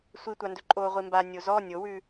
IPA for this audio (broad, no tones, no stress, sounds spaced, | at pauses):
sʷ i tʷ a n d ɵ ǃʼ oː ʁʷ i m b a nʲ o z ɔ nʲ o w ʉ